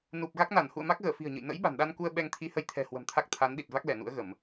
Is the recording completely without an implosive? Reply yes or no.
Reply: no